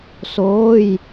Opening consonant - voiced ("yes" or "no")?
no